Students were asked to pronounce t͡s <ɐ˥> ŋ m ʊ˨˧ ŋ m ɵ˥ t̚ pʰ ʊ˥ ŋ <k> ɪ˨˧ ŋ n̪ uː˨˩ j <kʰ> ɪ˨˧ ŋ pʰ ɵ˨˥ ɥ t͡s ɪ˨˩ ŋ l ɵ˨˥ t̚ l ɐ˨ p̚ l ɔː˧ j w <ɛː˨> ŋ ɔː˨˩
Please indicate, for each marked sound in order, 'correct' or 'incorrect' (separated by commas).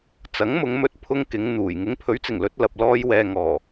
incorrect, correct, incorrect, correct